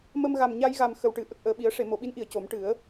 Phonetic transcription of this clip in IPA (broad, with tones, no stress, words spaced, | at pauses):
mə˧mɣa˨˩mɲa˧jɣa˨˩m xə˨˩wʈɨ˨˩˦ ʔə˨˩k̚ʔəː˨˩ɓi˨˩˦ə̯ ʂe˨˩˨mo˨˩˨ɓi˧˥nʔi˨˩˨ə̯ co˨˩˦m ʈɨ˨˩˦ə̯